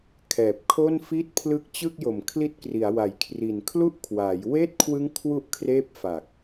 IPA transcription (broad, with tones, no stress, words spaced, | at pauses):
kʰɛː˨˩p̚kʰo˥˩nfi˥˩t̚ pʰlɯ˦˥k̚t͡ɕɯ˥˩k̚jo˨˩mkʰli˦˥t̚ kri˩˦a̯wa˨˩jkʰri˨˩n kʰlu˥˩ʔkʰwaː˩˦j weː˥˩t̚kʰwɯ˦˥ŋ kʰwu˥˩ʔ kʰreː˥˩p̚fa˨˩k̚